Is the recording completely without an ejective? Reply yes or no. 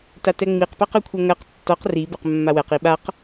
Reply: yes